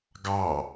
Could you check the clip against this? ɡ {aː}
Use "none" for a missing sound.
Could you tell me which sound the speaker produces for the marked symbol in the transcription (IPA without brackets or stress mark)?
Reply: ɑː